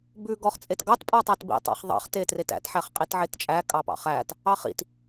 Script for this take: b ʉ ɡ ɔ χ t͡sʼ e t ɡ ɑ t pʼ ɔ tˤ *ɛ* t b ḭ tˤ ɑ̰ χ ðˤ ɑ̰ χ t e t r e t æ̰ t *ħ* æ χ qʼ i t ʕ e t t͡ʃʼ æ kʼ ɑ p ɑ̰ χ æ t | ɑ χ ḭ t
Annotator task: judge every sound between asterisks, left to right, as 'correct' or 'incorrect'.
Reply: incorrect, correct

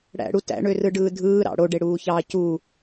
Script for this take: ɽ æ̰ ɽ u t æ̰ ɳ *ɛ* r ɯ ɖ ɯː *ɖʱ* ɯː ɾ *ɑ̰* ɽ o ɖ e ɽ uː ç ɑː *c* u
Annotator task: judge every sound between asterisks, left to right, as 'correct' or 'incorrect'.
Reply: incorrect, incorrect, correct, correct

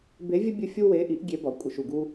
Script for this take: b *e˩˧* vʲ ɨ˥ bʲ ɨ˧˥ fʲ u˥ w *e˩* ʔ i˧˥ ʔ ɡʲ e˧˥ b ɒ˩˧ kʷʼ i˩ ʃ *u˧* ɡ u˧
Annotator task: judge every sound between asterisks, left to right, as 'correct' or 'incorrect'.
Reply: incorrect, incorrect, incorrect

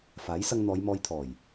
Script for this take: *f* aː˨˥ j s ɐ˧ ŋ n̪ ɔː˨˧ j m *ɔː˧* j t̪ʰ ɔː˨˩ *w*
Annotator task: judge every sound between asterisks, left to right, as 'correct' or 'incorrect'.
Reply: correct, correct, incorrect

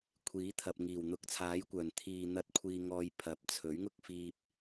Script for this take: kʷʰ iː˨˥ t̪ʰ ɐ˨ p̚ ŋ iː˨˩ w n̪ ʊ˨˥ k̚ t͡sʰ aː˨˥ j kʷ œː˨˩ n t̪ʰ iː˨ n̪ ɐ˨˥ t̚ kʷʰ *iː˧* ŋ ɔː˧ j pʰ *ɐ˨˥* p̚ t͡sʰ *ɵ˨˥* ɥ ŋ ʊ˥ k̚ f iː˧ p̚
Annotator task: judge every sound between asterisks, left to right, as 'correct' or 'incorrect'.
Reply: correct, correct, correct

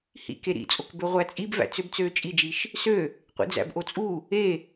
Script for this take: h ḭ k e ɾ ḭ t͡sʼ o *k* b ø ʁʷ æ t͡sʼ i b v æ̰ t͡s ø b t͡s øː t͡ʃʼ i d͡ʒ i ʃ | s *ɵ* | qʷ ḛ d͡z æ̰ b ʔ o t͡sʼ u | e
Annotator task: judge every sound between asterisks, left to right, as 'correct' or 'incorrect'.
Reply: correct, incorrect

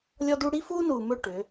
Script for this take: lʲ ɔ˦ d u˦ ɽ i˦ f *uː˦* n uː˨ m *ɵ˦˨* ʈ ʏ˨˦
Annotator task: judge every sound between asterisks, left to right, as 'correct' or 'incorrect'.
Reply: correct, correct

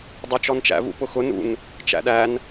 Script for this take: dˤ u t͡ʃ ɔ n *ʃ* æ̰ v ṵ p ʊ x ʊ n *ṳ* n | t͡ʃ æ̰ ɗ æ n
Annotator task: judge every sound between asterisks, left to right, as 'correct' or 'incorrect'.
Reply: incorrect, incorrect

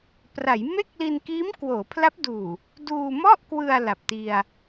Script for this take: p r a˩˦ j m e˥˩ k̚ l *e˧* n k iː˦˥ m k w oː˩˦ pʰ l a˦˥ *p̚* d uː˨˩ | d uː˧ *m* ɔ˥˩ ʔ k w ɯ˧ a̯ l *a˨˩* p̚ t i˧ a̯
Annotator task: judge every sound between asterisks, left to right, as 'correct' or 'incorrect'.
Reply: incorrect, correct, correct, correct

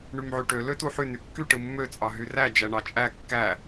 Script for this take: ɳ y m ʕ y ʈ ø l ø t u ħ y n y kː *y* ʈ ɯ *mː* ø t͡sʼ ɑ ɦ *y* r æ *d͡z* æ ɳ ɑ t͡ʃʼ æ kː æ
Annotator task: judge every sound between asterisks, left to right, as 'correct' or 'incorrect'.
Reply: correct, correct, correct, incorrect

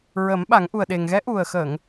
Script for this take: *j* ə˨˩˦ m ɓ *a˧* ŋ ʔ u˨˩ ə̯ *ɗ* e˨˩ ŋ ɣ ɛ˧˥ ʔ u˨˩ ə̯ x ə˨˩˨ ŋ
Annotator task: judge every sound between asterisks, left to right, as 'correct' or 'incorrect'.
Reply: incorrect, incorrect, correct

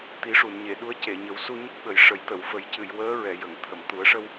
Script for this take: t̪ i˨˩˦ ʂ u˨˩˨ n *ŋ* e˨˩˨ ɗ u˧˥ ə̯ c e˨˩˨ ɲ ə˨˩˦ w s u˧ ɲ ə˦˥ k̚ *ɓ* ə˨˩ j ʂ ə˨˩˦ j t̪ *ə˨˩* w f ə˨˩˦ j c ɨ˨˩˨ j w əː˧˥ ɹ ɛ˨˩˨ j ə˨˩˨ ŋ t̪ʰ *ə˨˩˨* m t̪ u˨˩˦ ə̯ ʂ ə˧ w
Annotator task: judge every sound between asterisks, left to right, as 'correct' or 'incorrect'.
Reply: incorrect, correct, incorrect, correct

